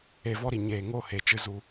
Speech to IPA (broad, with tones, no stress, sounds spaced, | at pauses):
e˧ v ɔ˦ ɾ i˨ ɲ eː˨ ŋ o˦˨ h e˨ t͡ʃ ɨ˨ z u˨